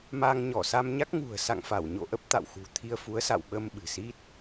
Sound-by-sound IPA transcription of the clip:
ma˧ŋɲɔ˧˩sa˧m ɲa˦˥k̚ŋṳ˨˩ə̯sa̰˧˨ŋfa˧˩w ɲo̰˧˨ʔə˦˥p̚t̪a̰˧˨w xṳ˨˩ t̪ʰi˧ə̯ fu˨˦ə̯sa̰˧˨wɓə˧m ɓɨ̤˨˩si˦˥t̚

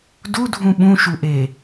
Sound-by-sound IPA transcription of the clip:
dudʱũ ɓũʃuʔe

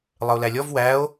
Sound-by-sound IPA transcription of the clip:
lˠəo̯lælʲɔv wæo̯

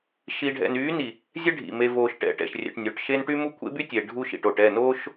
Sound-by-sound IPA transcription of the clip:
ʃi˨ɖʱɛ̰˨nyː˨˦ni˨ | zʲɛ˦ɖʱḭ˨ me˨voː˨ʃ ʈɛ̰˨ʈɛ̰˨ʃrʲɛ̰˨ʈnʲo˨ʈ ʃe˦nʈy˦mu˦ kʷʰḛ˦by˦tʲe˨ ɖʱu˦ʃḭ˨ʈo˨ʈ ɛ˦˨noː˦ʃ

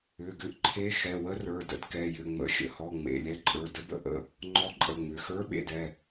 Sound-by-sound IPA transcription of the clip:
ʏ˩˧˩ɡʏ˧˥ʔǃʰe˧˥ xɛ˩˧˩wə˧˥rə˞˩˧˩ də̰˧˥dkɛ˩˧˩jʏ˩˧˩ ŋ͡mə̰˩˧˩xʲə̰˩˧˩hɔ˩˧˩ ŋ͡mḛ˩˧˩lʲɛ˧˥ǃʼə˞˩˧˩ də˧˥bə̰˧˥ʔə̰˩˧˩ | ŋ͡ǃɔ˧˥ǃʼə˩˧˩ ŋ͡mʏ˩˧˩ xə˞˧˥ɓḛ˩˧˩d ɛ˩˧˩

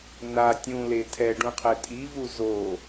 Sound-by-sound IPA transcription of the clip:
na tʲũle tʰɛɖũqʰɛ tʼivu zo

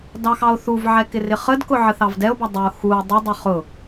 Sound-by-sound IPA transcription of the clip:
dɑxɑo̯θuvʕɛ kɪrɪχədkʊ ʕəθɑvdɛo̯bʌ dˤəo̯ xuo̯ dˤədˤʌ χʊ

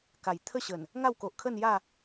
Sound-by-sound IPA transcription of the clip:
ka˨˩j t̪ʰə˥˧ɕə˨˩n | ŋa˥˧wko˨ʔkʰə˥˧nja˥˧

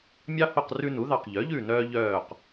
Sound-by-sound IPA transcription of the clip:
mʲɑ˦ho˦˨q rʉ˦nu˩˥ðɑ˦˨q ʎœ˩˥ʎʉ˦˨ nœː˦ʎœː˦˨q

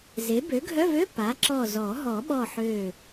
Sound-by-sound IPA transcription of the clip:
ze˩˥ bø˩˥ɡʱœ˧˥˧vø˧˥˧ pa˩˥ǁɔ˧˩zɔ˨˩˦ ɦɔ˨˩˦ɓɔ˧˩ ħø˧˩

